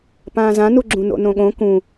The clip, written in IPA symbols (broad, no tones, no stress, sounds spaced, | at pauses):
p ãː z ã n u ɡ͡ǁ ũ n o̰ n õ ɠ õ k ũ